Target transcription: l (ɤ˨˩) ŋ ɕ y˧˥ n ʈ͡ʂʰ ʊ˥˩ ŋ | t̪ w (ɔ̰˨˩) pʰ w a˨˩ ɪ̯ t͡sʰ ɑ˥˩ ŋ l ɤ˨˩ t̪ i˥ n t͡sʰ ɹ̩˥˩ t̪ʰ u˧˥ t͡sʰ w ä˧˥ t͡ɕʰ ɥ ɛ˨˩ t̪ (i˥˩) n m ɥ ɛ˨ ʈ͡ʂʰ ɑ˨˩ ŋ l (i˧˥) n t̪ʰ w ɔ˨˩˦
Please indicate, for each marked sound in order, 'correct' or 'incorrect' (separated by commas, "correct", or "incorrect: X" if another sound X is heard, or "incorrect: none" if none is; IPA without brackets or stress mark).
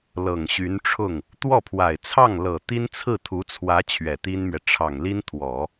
correct, incorrect: ɔ˥˩, incorrect: i˥, incorrect: i˥